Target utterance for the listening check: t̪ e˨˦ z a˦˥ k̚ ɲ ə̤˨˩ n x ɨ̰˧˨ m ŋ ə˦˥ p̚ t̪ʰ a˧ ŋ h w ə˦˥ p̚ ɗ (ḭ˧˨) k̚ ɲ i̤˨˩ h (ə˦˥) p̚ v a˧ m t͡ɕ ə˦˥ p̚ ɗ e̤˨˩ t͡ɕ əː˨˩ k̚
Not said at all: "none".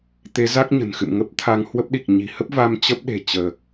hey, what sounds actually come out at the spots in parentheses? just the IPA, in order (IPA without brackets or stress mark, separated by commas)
i˨˩, ə˦˥